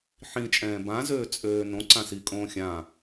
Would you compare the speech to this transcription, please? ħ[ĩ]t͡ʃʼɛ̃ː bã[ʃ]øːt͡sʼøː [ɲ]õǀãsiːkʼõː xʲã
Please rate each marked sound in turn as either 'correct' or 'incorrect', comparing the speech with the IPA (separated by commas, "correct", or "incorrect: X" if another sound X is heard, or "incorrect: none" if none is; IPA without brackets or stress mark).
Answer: correct, incorrect: z, incorrect: n